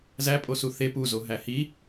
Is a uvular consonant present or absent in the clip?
absent